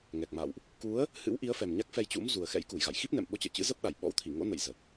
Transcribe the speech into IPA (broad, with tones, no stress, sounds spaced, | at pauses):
ŋ ɛ˨˩ k̚ m a̰˧˨ w ʔ | k u˨˦ ə̯ | h ɨ̰˧˥ w ʔ i˨˦ ə̯ f ɛ˨˩ m ɲ a˦˥ k̚ f ɛ˧ j t͡ɕ ṵ˧˥ m z u˨˩ ə̯ x ɛ̰˧˥ j k u˧˩ j ɣ a̰˧˨ j x i˦˥ p̚ n ɛ̰˧˨ m ɓ o˧ t͡ɕ ə̰ː˧˨ t͡ɕ ɨ̰˧˥ z ə˦˥ p̚ ɗ a˧˩ j ɓ ɔ̰˧˥ w t̪ʰ i˧˩ ŋ o̰˧˥ n ə̰˧˨ j z ə˨˩ t̚